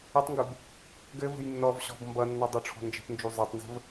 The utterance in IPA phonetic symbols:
ɘ tˤ ŋ ɡ u b | ɡ ɘ v ə̤ j nː ɔ v ɕ ɔ̤ b m b ʌ nː ɔ dˤ o ʈ͡ʂʰ ɔ̤ n d͡ʒ ə̤ p n d͡ʒ u zˤ ʌ tˤ n z ə̤ v

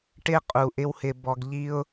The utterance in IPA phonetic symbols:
ʈ ɪ˦ qʼ u˨ ʔ ɪ˦ w h ɪ˨ b ɔ˨ ɡ ʎ i˦ ʊ̯

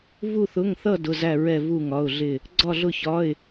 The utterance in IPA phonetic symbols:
v u˥˧ θ ʊ˧˥˧ ŋ θ ʌ˥˧ d ʊ˧˥˧ z æ˥˧ ɹ ɛ˥˧ v u˥˧ ŋ ɒ˧˥˧ ʊ̯ ɮ ɪ˥˧ | ɡ͡ǀ ɒ˥˧ ɮ ʊ˥˧ ç ɒ˧˥˧ ɪ̯

